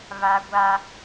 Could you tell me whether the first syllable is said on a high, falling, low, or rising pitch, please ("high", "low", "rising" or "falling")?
high